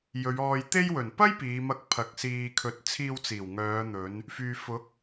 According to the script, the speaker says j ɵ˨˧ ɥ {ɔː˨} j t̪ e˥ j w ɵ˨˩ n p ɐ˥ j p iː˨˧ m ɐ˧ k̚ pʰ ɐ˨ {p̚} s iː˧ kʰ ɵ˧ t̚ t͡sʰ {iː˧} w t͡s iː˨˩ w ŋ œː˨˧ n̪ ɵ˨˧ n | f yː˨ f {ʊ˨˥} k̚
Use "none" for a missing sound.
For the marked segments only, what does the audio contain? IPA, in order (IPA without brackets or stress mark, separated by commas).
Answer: ɔː˧, k̚, iː˧, ʊ˨˥